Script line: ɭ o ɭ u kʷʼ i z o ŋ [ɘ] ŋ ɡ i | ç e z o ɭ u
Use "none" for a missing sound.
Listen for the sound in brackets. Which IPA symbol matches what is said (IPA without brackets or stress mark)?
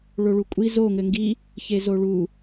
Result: ɘ